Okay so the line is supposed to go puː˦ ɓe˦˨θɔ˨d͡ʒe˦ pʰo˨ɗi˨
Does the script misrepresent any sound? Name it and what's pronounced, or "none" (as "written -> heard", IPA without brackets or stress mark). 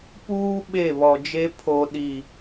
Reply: θ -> β